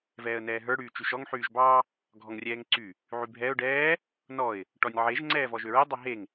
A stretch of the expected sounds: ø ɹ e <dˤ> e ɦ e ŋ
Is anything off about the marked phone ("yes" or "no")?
no